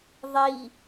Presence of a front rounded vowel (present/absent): absent